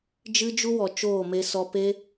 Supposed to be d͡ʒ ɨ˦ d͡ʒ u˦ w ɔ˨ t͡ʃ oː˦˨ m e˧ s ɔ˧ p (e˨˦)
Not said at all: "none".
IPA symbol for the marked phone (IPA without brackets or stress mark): e˦